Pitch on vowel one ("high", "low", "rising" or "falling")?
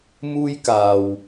high